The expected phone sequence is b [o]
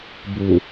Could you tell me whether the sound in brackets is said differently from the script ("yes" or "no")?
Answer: yes